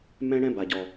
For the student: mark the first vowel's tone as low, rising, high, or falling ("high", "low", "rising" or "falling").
high